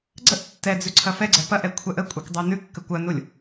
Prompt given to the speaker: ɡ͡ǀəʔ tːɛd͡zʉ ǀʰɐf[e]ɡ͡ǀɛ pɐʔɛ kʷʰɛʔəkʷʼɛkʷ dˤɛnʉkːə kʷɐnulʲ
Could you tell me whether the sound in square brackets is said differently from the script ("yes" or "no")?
yes